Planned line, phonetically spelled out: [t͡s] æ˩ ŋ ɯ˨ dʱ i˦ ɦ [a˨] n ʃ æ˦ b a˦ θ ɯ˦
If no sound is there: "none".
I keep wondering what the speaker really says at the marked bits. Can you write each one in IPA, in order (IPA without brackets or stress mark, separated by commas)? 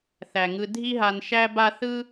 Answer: θ, a˨